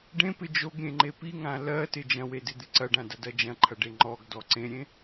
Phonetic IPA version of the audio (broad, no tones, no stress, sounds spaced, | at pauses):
ɖ ẽ p ɪ d͡ʒ o ɡ ɾʲ ẽ ŋ͡ǃ e p i ŋ ã l ɜ t ɪ d͡ʒ ɐ̃ w e d ɪ d̪ ɪ ǀ ɐ ɖ ã d ɐ d ɐ d͡ʒ ɐ̃ ǃʰ ɐ ɖ e ŋ͡ǃ ɔ ɡ d ɔ ǀ ẽ ɾʲ ẽ